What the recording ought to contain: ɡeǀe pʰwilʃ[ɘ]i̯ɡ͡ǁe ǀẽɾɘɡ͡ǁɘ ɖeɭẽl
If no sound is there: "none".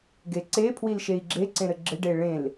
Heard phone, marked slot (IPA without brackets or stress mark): e